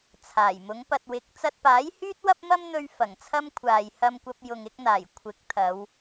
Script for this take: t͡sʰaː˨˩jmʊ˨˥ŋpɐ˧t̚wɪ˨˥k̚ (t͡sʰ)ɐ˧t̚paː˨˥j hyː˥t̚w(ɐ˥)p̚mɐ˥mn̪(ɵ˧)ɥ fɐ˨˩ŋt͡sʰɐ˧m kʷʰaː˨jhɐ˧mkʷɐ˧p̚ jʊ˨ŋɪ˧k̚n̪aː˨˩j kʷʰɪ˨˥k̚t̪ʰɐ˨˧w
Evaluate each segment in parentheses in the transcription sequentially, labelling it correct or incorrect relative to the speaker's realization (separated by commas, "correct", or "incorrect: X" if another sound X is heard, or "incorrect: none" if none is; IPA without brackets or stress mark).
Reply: incorrect: t͡s, correct, correct